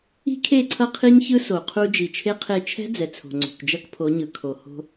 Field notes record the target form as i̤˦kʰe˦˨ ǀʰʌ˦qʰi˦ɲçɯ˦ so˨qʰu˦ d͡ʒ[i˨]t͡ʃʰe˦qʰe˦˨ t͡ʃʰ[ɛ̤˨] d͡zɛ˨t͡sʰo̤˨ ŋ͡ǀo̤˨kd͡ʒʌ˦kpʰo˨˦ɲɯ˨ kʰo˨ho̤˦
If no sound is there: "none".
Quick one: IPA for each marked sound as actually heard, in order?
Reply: i˨, ɛ̤˦

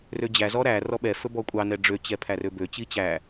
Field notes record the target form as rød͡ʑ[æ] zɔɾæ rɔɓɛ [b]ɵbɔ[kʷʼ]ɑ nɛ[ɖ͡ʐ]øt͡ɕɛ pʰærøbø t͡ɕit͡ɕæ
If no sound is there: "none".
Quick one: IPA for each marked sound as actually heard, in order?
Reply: æ, f, kʷʼ, ɖ͡ʐ

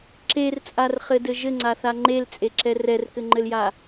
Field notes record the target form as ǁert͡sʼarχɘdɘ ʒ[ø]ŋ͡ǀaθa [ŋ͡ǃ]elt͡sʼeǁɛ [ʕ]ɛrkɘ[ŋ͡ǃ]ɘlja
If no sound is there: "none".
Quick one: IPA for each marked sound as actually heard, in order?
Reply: ɘ, ŋ͡ǃ, r, ŋ͡ǃ

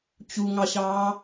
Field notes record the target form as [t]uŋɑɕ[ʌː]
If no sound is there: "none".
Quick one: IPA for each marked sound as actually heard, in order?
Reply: t͡ɕ, ɑː

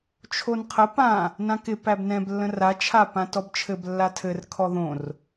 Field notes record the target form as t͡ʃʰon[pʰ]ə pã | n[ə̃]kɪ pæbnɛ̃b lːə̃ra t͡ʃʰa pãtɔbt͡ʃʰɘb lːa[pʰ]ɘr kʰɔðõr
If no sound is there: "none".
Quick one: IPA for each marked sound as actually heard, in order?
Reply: qʰ, ã, tʰ

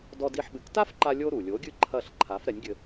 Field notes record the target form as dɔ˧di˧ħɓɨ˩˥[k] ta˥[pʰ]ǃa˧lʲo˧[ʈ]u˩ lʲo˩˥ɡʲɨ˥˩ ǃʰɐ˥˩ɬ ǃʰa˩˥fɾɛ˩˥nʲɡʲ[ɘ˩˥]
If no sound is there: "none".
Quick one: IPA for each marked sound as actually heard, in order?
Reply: k, f, ɾ, ɘ˧

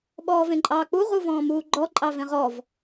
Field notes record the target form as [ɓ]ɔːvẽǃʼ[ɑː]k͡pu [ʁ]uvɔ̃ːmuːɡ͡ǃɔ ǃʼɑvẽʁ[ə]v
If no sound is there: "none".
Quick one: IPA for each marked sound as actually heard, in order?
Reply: ɓ, ɑː, ʁ, ɔ

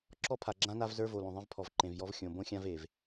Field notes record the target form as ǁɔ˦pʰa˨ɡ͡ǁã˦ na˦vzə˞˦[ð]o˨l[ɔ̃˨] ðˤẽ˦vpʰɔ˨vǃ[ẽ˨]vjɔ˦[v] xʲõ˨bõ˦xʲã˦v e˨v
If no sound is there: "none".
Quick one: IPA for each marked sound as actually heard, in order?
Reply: v, õ˨, ẽ˨, v

